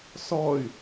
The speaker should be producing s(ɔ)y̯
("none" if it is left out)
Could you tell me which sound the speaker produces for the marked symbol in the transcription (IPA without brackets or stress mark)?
ɔ